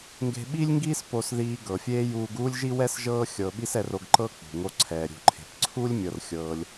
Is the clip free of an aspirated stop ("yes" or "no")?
no